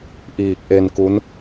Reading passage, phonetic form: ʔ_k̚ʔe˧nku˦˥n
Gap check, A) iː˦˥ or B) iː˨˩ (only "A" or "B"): B